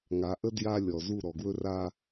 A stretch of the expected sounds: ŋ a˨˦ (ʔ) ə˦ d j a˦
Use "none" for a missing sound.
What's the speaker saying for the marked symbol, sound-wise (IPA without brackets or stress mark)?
ʔ